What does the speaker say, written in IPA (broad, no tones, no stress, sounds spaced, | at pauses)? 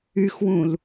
y x w ũ l